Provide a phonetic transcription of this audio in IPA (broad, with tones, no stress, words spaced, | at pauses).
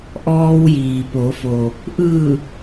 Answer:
ʔɔː˧wjiː˩po˩˧fo˩ | ʔɯː˧˩